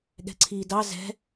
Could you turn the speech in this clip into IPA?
ɠ ɛ̤ ǀʰ iː d ɑ z ɛ̤

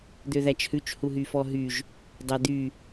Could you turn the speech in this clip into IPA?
d̪ ø ð æ t͡ʃ h ʉ t͡ʃ h u ɦ y f ɔ ɦ y ʒ | dˤ æ d̪ y

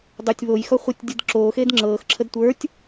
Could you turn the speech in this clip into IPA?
dˤ ə˞ tʲ β o j x ɔ χʷ ə˞ tʲ dʲ ɯ d ǁ oː x eː d ŋ͡ǁ ɤː x ǁʰ ə d tʷ ə˞ tʲ

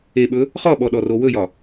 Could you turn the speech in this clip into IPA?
e ɓ ɵ | χ ɔ ɓ ɔ ɗ ɔ r o w ɵ j ɒ

